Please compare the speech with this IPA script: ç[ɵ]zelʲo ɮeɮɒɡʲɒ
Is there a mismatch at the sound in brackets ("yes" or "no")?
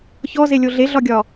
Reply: yes